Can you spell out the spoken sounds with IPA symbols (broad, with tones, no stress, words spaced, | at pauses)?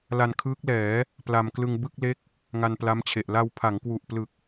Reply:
la˧nkʰɯː˦˥k̚lɛː˩˦ | pla˧mklɯ˧ŋ bɯ˥˩k̚le˦˥k̚ | ŋa˧npla˦˥mt͡ɕʰe˨˩ʔ la˧wpʰa˩˦ŋkwu˨˩ʔplɯ˨˩k̚